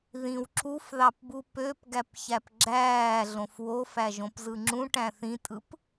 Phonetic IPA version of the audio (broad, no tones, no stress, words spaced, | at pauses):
ðĩw ǁufðɑpbu pøpɡæpçæp ɡ͡ǁæːɮõf wofæʒõpzɯ ŋ͡ǁũʈæ̃ θĩtʼɯp